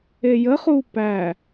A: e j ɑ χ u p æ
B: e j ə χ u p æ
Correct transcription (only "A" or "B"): B